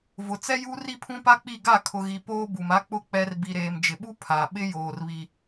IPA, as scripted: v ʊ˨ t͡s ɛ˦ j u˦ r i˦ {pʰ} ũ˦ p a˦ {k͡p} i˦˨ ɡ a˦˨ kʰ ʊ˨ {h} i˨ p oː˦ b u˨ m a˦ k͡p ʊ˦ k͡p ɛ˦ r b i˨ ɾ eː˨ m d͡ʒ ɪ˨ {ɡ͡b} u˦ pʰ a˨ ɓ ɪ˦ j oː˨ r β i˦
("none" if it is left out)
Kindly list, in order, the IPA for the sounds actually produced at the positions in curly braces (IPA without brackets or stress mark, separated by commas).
pʰ, k͡p, ɣ, ɓ